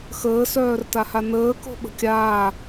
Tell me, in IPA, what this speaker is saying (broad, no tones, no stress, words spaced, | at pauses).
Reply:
xəːsœːr tahanəː ko̤ɓə̤kʲaː